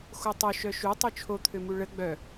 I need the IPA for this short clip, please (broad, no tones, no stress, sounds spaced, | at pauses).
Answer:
x o tˤ o ʃ œ ʃ u tˤ u t͡ʃʰ o t̪ʰ ø m u ɭ ə ɡ͡b œ